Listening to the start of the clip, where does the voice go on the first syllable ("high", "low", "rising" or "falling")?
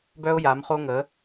high